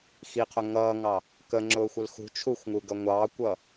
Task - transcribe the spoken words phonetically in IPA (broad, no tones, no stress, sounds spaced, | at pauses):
x i qʰ ʊ ŋ ʌː ŋ ɑ | k ə ŋ͡ǁ ʊː xʷ ə l x ṳ t͡ʃʰ u xʷ ŋ u ɡ ʌ ŋʷ ɑː kʷ ʌː